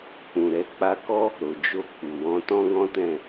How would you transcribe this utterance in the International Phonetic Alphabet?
k͡p ũ˨ ɾ ɛ˧ k͡p a˧ k ɔ˦ | ɾ o˨ d͡ʒ o˧ k͡p u˨ w ɔ̃˧ t ɔ̃˦ ɡ ɔ̃˦ t ɛ̃˦˨

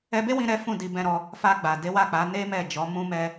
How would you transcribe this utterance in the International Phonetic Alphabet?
ɛ˧ b e˦ w ĩ˧ ɾ ɛ˦ f ũ˦˨ d i˨ b ɛ̃˧ ɾ ɔ˧ | f a˧ ɡ͡b a˨ d e˨˦ w a˦˨ k͡p a˨˦ n e˦ m ɛ˦˨ d͡ʒ ɔ˨˦ m ũ˦ m ɛ˦

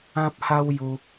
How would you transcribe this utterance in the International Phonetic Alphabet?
ã˦ p̚ h a˦ w j u˧

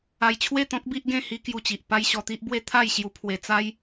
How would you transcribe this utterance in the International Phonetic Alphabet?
a˧ j t͡ɕʰ w e˥˧ t̪ ɔ̃˦ k̚ b i˦ ʔ ɡ ẽ˥˧ h i˦ k j u˧ t͡ɕ i˨ ʔ p a˦ j ɕ ɔ˧ t̪ i˦ ʔ b w e˦ t̪ʰ a˥˧ j ɕ j u˧ pʰ w e˧ t͡s a˦ j

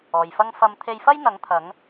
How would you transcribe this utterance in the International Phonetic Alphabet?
ɔː˨ j f ɐ˥ ŋ f ɐ˧ m t̪ʰ e˧ j f ɐ˥ j n̪ ɐ˨˧ ŋ t̪ʰ ɐ˨˧ ŋ

